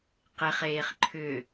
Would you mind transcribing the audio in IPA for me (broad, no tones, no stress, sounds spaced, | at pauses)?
q e χ eː χ ǃʰ ʏ